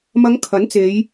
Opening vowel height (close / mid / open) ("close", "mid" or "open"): open